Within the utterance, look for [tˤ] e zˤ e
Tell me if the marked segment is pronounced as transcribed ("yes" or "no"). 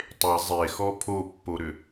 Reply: yes